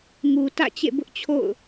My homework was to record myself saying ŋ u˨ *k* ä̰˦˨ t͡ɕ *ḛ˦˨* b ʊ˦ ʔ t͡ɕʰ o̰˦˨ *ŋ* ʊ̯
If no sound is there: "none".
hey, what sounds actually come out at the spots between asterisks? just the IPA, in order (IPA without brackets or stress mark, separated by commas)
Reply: t, ḛ˦˨, none